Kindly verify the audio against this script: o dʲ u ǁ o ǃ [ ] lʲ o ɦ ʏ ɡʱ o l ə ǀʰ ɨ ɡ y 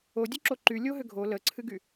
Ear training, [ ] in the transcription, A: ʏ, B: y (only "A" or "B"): B